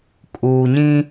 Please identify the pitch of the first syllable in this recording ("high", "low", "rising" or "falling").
low